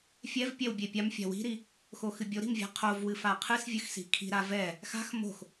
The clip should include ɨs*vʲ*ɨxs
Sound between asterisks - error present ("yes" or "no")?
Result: no